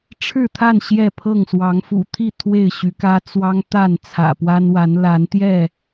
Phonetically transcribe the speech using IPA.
ʈ͡ʂʰ ɻ̩˥˨ t̪ʰ a˥˨ n ɕ j ɛ˥˨ pʰ ɤ˥˨ ŋ s w ɑ˨˦ ŋ f ṵ˨˩ t̪ʰ i˥˨ t̪ʰ w e˥˨ ɪ̯ ɕ y˨˦ k ä˦ t͡s w ɑ˦ ŋ t̪ a˥˨ n t͡sʰ ä̰˨˩ p w a˦ n w a˨˦ n l a˨˦ n t̪ j ɛ˥˨

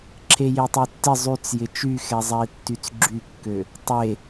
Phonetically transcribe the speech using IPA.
ǁʰ e j e tˤ y tː ɪ zˤ y t͡s j ɪ t͡ʃ y x ɛ zˤ ɛ i̯ tː y t͡s ɡ͡ǁ y kː ø | tˤ e

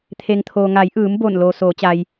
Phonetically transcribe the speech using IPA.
t̪ʰ e˩ ŋ t̪ʰ oː˩ ŋ a˩˧ j ʔ ɯː˩˧ m b o˧˩ n l oː˩ s oː˩˧ t͡ɕ a˩ j

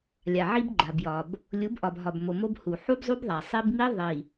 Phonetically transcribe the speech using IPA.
lʲ a˨ ʕ i˦ b ɡ͡ǃ a˨ b j ɒ˨ b | lʲ u˨˦ b ʔ ɒ˨ b ɦ ɒ˨ b m o˨ m o˦ b h u˨ ħ u˦ b zˤ u˦ b ðˤ a˨ sˤ i˦ b m i˦ ðˤ i˨

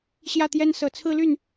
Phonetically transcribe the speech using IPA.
ɕ j ä˥˩ t̪ j ɛ˥ n s ɤ˨˩ t͡sʰ ɹ̩˥˧ l y˥˩ n

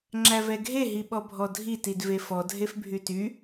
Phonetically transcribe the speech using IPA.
ŋ͡ǁ æ v ɛ ɡʱ e ɦ i ɓ ɔ bʱ ɔ dʱ i t i d v e f ɔ dʱ e f bʱ y t y

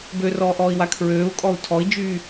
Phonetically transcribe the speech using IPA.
b ø r ɔː ʔ ɔː i̯ w a kʰ ɹ øː u̯ kʼ ɔ u̯ tʰ ɔ i̯ d͡ʒ yː

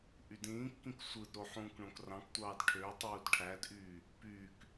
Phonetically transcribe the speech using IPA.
ʔ y d ĩː kː ĩ k sʷ ɯ d ɾ o ħ ũː k ɳ õ k r ɑ̃ k tʷ ɑː d ʈʰ ø tˤ uː d ʈʰ æ d ʔ yː | p yː k

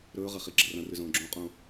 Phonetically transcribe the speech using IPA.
ɾ ɵː ʁ ɐ χ i ɡ͡ǁ ɐ r ɐ̃ r ʉ z õː ɡ͡ǁ õ qʼ ũː

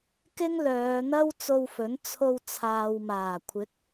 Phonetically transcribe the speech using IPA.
k ɪ˥ ŋ l œː˨˧ n̪ ɐ˥ w t͡s o˧ w f ɵ˨˥ n t͡sʰ o˧ w t͡sʰ aː˨ w m aː˨˩ kʷʰ ɪ˨˥ k̚

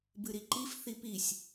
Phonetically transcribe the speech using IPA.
b ɨ ɾ i ǃ i f θ i p i sʲ

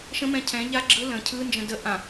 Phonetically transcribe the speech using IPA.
ʃ ə̃ m ɛ̃ cʰ ɛ̃ ʎ a ɡ͡ǁ ɯ l ə̃ cʰ ɯ n d͡ʒ ə̃ d ə ʔ ã

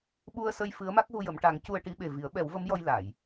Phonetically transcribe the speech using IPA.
ɓ u˧ ə̯ s ə˧ j f ɨ˧˥ ə̯ m a˦˥ k̚ ɣ u˧ j ə˨˩˨ m ʈ a˨˩˦ ŋ c u˧ ə̯ ʈ i˧˥ ɓ e˨˩ v i˨˩˦ ə̯ ɓ ɛ˨˩˦ w v ə˧˥ m j ɔ˧ j l a˨˩˨ j

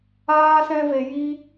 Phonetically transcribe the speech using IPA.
aː˦ s ɛ̃˦ v e˧ j i˦

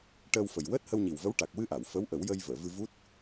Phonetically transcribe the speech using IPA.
ʈ əː˧ w f ə˨˩ j w əː˦˥ t̚ h ə˧ w ɲ i˨˩ w v ə˧˥ w ʈ a˨˩ k̚ w ɨ˧ ʔ a˨˩˨ w f ə˧˥ w ʔ ə˨˩˦ w j ə˧ j v əː˨˩˨ v ɨ˧ v u˦˥ t̚

